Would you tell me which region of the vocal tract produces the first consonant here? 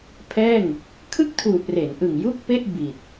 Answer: lips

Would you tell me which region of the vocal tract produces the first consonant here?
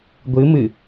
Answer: velum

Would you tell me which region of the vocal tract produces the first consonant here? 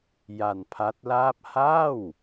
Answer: palate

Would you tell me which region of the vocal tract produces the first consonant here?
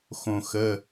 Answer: velum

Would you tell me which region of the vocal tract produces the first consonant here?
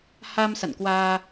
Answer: throat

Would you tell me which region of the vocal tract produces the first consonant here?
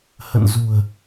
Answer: throat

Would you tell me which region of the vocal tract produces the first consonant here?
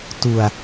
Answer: tongue tip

